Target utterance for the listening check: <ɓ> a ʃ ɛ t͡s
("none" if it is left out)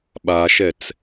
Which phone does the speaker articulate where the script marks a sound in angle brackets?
ɓ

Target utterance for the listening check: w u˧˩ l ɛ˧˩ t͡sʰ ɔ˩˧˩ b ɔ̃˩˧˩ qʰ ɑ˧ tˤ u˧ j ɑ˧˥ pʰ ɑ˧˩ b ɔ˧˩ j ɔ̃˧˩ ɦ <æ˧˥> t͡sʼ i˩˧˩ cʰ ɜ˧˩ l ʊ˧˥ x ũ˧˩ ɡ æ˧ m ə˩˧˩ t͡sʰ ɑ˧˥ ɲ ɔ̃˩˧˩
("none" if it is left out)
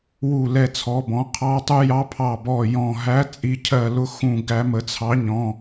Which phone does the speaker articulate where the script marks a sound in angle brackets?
æ˧˥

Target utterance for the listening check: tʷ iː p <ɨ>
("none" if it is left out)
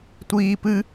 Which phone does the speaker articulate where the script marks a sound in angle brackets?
ɨ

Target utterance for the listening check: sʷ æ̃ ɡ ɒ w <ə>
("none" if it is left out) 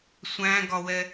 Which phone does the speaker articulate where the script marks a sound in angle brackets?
ɛ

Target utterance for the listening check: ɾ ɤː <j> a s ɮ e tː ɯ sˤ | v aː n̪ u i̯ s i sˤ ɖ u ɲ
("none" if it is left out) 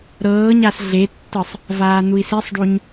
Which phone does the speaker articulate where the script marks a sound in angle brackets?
ɲ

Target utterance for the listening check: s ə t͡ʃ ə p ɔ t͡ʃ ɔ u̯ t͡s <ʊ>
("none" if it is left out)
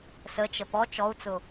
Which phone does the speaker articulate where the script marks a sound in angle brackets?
ʊ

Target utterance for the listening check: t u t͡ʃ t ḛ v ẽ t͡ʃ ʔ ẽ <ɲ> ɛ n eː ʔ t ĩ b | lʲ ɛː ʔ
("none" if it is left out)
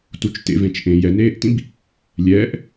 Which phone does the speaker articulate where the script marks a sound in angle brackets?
j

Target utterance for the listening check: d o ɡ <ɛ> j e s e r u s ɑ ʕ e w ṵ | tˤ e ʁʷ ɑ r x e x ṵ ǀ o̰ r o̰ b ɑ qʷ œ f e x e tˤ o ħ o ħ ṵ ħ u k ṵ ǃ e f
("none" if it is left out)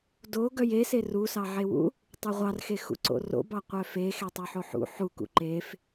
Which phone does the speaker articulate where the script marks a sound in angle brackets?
œ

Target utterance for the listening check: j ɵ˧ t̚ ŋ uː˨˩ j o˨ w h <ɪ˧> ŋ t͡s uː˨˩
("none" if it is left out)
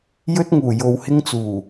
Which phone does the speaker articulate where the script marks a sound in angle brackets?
ɪ˧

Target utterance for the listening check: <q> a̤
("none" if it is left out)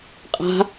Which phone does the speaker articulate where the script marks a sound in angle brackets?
qʼ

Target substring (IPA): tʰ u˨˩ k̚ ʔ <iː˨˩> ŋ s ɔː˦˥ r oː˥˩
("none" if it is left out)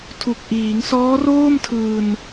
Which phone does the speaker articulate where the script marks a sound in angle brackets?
iː˩˦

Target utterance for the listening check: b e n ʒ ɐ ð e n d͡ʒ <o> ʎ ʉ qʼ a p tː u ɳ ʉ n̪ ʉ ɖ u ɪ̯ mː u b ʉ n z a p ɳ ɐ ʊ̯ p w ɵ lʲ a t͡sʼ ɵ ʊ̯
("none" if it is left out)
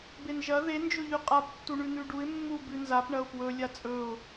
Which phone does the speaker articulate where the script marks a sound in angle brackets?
ɵ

